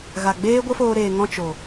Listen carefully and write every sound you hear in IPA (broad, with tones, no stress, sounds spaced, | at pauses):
ɣ a˨ ɡ͡b eː˦ ɡʷ ə˦ f oː˧ ɾ eː˨ ŋ ɔ̃˧ t͡ʃ o˨